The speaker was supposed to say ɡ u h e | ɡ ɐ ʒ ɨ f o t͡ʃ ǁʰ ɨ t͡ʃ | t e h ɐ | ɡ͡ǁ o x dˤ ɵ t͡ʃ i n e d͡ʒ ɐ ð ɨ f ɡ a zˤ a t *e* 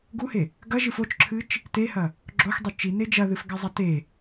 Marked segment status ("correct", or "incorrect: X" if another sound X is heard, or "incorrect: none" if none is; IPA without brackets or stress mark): correct